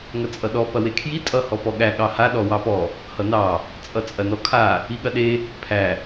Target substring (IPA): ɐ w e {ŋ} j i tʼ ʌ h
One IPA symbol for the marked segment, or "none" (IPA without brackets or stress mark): kʰ